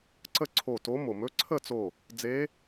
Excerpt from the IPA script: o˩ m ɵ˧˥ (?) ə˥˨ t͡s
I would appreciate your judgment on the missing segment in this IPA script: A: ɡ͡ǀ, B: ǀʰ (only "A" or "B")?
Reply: B